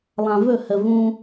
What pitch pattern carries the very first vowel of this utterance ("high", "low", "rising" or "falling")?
low